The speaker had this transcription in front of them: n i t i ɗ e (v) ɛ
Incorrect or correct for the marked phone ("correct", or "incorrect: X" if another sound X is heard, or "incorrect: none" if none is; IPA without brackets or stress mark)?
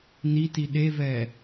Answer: correct